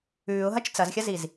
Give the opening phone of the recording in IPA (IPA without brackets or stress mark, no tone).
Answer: ʉː